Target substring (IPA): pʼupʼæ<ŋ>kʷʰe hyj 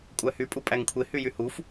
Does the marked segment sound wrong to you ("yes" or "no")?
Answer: no